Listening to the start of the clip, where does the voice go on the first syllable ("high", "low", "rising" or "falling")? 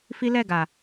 high